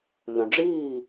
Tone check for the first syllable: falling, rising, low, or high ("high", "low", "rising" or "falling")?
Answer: low